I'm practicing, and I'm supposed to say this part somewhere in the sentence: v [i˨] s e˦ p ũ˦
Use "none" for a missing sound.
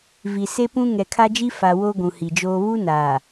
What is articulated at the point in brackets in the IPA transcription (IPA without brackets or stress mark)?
i˨